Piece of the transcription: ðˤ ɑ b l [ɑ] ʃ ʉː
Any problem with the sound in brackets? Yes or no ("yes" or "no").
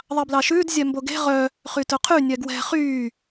no